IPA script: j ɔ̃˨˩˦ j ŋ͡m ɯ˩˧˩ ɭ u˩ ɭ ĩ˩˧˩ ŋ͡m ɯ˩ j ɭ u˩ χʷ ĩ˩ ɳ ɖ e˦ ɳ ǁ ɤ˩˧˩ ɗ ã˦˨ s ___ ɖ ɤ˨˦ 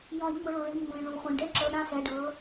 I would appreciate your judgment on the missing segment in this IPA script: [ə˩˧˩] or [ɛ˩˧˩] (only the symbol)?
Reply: ɛ˩˧˩